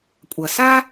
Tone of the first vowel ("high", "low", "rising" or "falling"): low